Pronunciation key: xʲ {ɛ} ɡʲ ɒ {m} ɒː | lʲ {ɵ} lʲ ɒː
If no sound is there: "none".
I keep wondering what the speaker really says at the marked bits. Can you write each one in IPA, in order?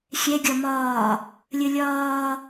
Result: ɛ, m, ə

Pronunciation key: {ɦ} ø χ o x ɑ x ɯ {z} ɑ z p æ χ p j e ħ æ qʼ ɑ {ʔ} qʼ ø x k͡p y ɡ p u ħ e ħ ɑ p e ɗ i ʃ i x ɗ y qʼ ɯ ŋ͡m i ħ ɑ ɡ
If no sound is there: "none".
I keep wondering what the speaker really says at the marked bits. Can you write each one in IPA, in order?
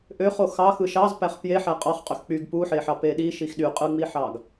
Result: ʔ, ʃ, χ

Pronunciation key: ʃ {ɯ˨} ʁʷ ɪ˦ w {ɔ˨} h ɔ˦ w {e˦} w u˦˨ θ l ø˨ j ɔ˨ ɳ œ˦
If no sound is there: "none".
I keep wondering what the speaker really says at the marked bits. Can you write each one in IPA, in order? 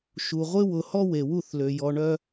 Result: u˨, ʊ˨, e˨

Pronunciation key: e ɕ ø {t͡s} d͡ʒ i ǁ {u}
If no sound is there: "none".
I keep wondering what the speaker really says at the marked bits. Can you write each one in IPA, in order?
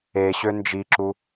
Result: n, u

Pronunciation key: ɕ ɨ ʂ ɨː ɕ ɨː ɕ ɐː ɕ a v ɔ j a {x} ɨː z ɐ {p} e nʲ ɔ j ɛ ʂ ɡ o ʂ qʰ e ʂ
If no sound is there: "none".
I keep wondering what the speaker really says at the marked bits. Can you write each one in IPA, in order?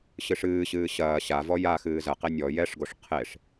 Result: x, q

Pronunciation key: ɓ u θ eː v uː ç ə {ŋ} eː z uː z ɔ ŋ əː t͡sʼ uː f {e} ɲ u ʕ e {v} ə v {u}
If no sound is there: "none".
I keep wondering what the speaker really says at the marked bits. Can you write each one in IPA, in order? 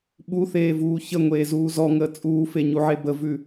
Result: ŋʷ, e, b, ʉ

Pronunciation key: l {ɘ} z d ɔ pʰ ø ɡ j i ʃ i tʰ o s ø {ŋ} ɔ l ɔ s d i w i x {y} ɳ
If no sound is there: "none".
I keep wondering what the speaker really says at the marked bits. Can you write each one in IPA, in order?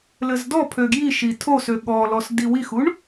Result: ɘ, ɠ, u

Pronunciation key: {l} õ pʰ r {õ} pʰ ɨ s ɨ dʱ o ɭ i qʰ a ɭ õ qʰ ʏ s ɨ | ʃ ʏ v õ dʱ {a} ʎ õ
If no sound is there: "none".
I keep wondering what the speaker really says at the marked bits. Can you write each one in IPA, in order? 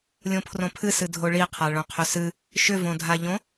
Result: lʲ, õ, a

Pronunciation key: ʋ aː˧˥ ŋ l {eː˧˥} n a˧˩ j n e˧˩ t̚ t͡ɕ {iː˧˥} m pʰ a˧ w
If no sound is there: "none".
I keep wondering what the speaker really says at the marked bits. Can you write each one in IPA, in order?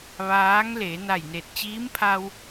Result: eː˩˧, iː˧˥

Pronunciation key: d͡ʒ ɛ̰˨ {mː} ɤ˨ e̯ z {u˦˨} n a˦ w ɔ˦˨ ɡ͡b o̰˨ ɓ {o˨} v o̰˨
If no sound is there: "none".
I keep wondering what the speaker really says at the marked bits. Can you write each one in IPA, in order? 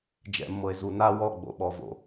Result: mː, u˨, ɔ˨

